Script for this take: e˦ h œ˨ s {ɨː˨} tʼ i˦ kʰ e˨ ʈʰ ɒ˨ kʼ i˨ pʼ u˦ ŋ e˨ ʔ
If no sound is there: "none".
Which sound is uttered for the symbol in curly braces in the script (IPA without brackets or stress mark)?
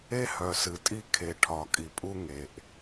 ɨ˨